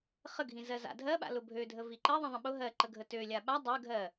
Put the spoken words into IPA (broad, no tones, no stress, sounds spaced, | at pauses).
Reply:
χ ə ɡʱ ĩ z ɜ z a̰ dʱ ɜ ɓ a̰ l ʊ bʱ ø dʱ ə v i ǃ ɜ ðˤ ĩ ðˤ ə̃ ɓ ʊ ɦ ɜ ǃ ə ɡʱ ə t ø lʲ a ɓ a dˤ ɜ ɡʱ ɜ